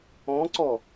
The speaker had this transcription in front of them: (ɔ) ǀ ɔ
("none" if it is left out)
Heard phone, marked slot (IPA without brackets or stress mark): ɔ̃